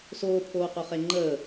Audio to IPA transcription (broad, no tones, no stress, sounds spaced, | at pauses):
s oː pʰ oː q o χ e ŋ͡ǃ əː